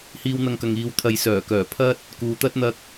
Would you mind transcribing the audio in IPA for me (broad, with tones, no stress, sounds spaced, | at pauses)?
h iː˧ w n̪ ɐ˧ ŋ k ɐ˨ ŋ iː˨˧ w t̪ʰ ɐ˨ j s œː˨˩ k œː˨˩ pʰ ɐ˥ t̚ | k uː˨ t̪ ɐ˥ t̚ n̪ ɐ˥ k̚